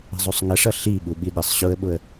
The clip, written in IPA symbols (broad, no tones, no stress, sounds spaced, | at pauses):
ə̤ zˤ u sˤ ŋ ə ʂ ʌ ɬ i ɓ u ɓ i ɗ ɪ sˤ ɕ ʊ ə̯ ɓ ʊ ə̯